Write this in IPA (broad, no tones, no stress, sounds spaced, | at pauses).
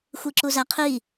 xʷ i ǁ u z æ qʰ i